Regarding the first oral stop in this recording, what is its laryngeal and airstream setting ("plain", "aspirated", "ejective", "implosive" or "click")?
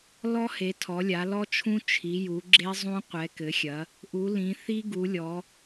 aspirated